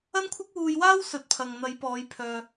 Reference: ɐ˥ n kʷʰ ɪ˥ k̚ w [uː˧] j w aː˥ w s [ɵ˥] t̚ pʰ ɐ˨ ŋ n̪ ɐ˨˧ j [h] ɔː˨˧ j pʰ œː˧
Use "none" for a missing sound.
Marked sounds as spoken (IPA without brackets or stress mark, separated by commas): uː˧, ɵ˨˥, p